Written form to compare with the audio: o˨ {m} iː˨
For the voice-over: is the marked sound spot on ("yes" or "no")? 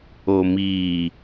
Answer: yes